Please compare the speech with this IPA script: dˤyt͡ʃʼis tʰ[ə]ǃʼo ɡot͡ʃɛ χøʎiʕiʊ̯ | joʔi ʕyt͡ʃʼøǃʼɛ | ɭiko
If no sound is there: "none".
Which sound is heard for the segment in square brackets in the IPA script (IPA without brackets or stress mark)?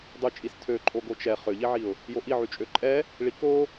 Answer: ø